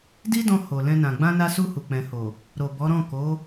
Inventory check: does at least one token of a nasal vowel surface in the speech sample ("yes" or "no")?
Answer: yes